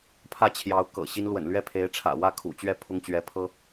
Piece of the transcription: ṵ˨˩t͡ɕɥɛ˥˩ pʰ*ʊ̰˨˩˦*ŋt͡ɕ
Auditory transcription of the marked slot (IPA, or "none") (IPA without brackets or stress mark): ʊ˥